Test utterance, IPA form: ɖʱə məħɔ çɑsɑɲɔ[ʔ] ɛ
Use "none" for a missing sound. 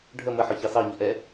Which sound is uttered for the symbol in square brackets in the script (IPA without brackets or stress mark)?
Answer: ʔ